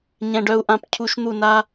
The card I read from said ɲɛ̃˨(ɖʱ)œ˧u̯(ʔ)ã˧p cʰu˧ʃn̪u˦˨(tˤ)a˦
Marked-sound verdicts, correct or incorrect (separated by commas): incorrect, correct, incorrect